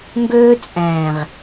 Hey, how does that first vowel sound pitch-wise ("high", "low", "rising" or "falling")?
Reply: high